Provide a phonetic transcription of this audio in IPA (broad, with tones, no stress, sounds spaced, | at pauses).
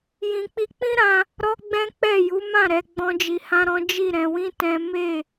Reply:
j ĩ˨ k͡p i˧ k͡p ĩ˦ ɾ ã˧ | ɾ ɔ˦ ɡ͡b ɛ̃˦ k͡p ɛ˦˨ j u˨˦ m ã˦˨ ɾ ɛ˨˦ ɡ͡b ɔ̃˦ d͡ʒ i˧ h ã˦ ɾ ɔ̃˦ d͡ʒ i˦˨ ɾ ɛ̃˧ w ĩ˦ t ɛ̃˦ m e˦˨